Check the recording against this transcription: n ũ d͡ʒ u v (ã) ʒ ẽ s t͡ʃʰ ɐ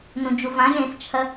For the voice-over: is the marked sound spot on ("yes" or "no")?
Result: yes